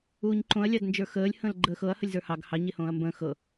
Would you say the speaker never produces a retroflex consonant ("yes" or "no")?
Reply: yes